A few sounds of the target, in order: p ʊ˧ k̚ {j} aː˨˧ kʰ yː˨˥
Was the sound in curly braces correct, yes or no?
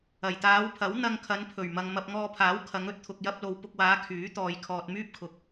no